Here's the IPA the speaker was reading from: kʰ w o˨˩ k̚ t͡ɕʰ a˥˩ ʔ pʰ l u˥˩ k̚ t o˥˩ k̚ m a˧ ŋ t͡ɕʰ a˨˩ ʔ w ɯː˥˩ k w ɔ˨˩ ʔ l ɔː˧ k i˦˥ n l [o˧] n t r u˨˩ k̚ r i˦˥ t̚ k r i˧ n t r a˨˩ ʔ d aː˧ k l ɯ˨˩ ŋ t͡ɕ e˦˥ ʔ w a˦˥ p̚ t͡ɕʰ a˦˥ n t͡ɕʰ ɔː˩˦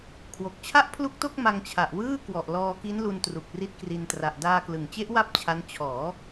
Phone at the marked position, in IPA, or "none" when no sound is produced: u˧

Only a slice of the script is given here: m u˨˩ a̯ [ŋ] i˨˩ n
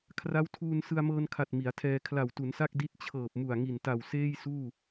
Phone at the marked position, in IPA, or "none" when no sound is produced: ŋ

